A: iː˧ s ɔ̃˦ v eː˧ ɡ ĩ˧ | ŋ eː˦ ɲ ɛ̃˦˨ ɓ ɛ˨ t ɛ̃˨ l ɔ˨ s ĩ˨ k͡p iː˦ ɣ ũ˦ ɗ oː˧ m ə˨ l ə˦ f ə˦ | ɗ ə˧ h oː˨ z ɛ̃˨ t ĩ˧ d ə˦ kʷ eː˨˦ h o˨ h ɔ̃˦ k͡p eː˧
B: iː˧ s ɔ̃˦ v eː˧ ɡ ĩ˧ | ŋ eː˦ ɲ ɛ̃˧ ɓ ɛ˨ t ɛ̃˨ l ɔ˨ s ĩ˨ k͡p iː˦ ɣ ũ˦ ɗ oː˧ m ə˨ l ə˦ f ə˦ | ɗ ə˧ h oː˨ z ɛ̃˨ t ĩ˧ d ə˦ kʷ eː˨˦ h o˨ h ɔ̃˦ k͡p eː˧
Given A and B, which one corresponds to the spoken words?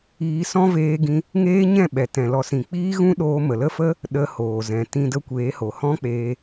A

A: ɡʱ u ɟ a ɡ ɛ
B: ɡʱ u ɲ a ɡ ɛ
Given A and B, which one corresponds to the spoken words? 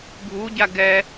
A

